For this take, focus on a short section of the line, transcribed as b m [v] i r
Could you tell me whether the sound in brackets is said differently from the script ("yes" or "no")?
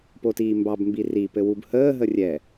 yes